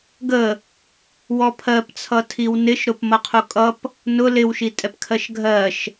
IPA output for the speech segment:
ɡ ə | w ɔ pʰ ɜ p t͡sʰ ʌ tʰ i w n ɪ ʃ ɾ ʊ p m ʌ qʰ u kʼ ʌ p | n ʊ l ɪ w ʃ i tʼ ɛ p kʰ ɜ ʃ ɡʱ ɜ ʃ

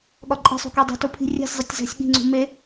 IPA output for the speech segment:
ɠ ɒ ǃʼ e̤ sˤ ṳ k e dˤ e̤ t o pʰ i̤ rʲ æ̤ sʲ zˤ o tʲ z æ̤ sʲ ɠ i̤ ŋ͡ǀ ṳ m e

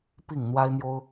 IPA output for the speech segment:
p i˥˩ ŋ n̪ w a˥ ɪ̯ n̪ j o˥ ʊ̯

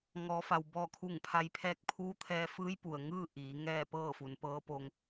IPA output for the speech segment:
ŋ ɔː˩˧ f a˩ w b ɔː˧˩ kʰ u˧˩ ŋ pʰ a˧ j pʰ ɛː˥˨ k̚ pʰ uː˧˥ t̪ʰ ɛː˧ f ɯː˧˥ j p u˩ ə̯ ŋ ɯː˥˨ ʔ iː˩˧ ŋ ɛː˥˨ p ɤː˥˨ f u˩˧ n p ɤː˧˥ p o˧ ŋ

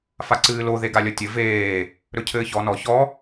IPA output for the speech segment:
f a ǀ ɨː l o ð e ɡ a lʲ ʌ tʲ ɘ v eː | ɾ ɵ cʰ ɘː ç ɔ n ɔ ç ɔ

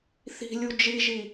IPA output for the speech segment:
θ i̤ lʲ u d͡ʒ i ʒ i

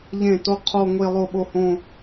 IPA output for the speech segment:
ʎ ẽ˥˩ t o˥˧ qʰ o˥˧ ŋʷ e˥˧ lˠ o˥˩ ɓ o˥˧ h õ˥˧

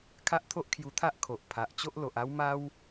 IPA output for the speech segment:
kʰ a˦ ʔ t̪ʰ o˦ ʔ kʰ j u˧ t̪ʰ a˦ ʔ kʰ o˨ ʔ pʰ a˨ ʔ t͡ɕ o˦ ʔ l o˨ ʔ a˦ w m a˦ w

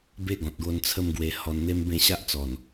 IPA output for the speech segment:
b e˦ ɡ ɔ̃˨ t̚ ɡ o˧ n t͡sʰ ə˧ m ɡ w e˧ h ɔ˧ n n̪ e˦ m b ẽ˥˧ ɕ a˦ ʔ t͡s ɔ˨˩ n

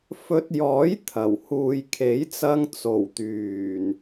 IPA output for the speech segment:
f ɵ˧ t̚ j ɔː˨˥ j t̪ʰ ɐ˨˩ w h uː˨ j kʰ e˨˥ j t͡s ɐ˧ ŋ t͡s o˨˩ w t̪ yː˨˩ n

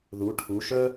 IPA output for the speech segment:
ð u˩˧ ʈʰ u˩˧ ʃ œ˦

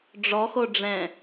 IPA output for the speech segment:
ɖ͡ʐ ɔ x o ɖ͡ʐ ɛ̃

